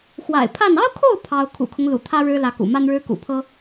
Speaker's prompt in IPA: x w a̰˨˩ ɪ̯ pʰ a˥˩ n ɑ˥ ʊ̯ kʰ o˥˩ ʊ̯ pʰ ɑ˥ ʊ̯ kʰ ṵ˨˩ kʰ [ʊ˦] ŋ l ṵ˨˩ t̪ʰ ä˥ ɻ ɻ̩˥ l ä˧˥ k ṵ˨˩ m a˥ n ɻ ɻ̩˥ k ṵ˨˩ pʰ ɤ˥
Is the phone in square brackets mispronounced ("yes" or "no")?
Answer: no